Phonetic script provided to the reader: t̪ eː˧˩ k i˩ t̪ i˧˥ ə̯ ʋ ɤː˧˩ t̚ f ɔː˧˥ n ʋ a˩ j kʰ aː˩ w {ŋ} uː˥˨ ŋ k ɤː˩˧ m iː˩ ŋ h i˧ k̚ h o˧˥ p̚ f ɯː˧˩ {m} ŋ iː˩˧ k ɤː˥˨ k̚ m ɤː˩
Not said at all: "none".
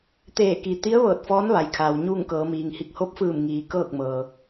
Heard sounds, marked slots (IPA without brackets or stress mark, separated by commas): ɲ, m